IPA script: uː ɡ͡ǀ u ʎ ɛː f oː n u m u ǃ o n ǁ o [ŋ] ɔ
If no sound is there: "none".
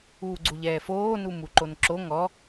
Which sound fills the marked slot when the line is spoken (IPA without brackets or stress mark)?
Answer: ŋ